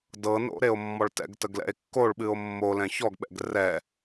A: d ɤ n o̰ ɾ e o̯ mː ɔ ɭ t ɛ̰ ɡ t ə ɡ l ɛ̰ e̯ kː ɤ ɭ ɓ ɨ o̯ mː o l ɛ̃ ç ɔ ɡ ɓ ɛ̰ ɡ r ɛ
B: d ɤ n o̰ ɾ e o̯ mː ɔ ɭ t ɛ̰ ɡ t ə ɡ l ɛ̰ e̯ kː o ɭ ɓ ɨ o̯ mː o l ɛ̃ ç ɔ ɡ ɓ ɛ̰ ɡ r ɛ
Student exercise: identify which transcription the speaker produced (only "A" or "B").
B